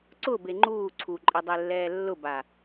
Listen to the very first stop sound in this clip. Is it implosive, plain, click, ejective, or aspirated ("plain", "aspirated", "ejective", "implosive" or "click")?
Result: click